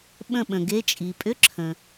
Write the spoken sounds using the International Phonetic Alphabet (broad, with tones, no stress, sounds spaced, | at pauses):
ɓ ə̃˥˨ ɓ ə̃˩ ɡ e˧˥˧ t͡ʃʼ i˩ pʼ ʏ˧˥˧ ǁʰ ə̃˩